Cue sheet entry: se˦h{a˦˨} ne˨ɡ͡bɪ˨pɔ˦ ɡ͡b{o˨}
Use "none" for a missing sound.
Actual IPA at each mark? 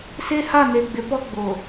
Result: a˦˨, o˨

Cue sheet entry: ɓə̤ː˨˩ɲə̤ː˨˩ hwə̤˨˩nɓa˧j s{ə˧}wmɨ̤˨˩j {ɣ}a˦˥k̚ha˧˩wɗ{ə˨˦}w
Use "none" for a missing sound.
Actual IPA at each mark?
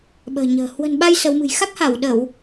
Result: ə˨˦, x, ə˧˩˨

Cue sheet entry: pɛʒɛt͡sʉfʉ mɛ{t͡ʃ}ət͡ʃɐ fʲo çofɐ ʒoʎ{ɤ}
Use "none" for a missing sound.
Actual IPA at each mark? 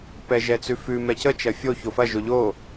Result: c, o

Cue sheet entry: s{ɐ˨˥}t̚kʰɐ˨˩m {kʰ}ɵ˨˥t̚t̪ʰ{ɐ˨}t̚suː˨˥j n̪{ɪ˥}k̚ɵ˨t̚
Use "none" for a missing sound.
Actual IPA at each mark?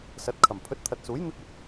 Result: ɐ˨˥, pʰ, ɐ˨, ɪ˥

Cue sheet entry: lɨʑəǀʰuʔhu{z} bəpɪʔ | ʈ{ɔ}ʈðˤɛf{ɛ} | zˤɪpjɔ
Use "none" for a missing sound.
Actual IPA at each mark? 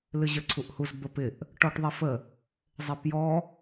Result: z, ɔ, ə

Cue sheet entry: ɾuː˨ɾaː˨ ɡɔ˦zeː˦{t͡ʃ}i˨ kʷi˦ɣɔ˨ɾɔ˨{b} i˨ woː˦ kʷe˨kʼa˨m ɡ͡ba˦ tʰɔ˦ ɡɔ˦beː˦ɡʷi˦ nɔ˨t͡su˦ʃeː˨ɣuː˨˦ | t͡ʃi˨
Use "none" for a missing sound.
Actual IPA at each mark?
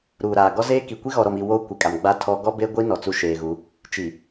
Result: k, m

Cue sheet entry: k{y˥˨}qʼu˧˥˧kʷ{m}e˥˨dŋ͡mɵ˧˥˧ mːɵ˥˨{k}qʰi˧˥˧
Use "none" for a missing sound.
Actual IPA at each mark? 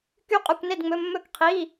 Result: y˥˨, n, k

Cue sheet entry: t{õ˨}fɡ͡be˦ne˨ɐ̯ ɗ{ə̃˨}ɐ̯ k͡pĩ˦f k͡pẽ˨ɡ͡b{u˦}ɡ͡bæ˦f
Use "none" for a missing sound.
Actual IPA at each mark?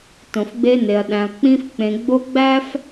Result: õ˨, æ̃˨, o˦

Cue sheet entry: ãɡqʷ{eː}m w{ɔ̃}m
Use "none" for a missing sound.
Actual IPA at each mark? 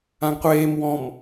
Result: eː, ɔ̃

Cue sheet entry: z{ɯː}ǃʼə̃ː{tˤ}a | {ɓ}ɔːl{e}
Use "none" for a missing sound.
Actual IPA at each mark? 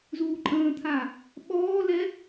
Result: uː, t̪ʰ, ɓ, ɛ

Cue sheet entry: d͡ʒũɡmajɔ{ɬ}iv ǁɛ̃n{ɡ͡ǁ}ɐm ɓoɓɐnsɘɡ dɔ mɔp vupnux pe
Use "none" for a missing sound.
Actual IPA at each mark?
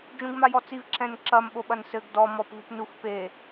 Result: t͡s, ǁ

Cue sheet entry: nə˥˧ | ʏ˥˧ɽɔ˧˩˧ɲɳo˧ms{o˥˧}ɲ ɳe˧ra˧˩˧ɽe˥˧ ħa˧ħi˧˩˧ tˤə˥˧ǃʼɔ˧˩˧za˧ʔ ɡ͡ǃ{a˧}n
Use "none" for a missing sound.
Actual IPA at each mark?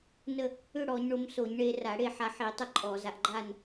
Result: o˧˩˧, a˥˧

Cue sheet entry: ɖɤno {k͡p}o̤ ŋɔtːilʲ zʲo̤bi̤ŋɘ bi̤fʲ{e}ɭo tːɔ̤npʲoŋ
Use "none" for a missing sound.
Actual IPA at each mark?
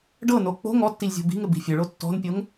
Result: k͡p, ɘ

